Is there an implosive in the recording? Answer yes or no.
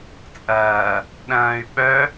yes